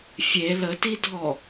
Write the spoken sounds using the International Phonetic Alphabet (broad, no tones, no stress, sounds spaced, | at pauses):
fʲ e l ə t i dʱ ɔ